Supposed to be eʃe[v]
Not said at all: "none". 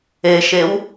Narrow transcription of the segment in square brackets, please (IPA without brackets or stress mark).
w